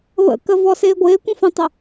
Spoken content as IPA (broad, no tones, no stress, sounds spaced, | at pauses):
β ə̰ k ə v ɔ s ɪː ɡʷ ɪː kʷ ə̃ f ə̃ tˤ ə